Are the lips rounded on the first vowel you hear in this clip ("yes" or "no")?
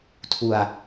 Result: yes